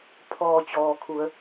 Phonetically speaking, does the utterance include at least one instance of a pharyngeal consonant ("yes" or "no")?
no